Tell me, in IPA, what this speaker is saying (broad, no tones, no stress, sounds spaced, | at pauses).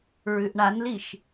ɹ ʉ ʔ ɳ a n l i ʃ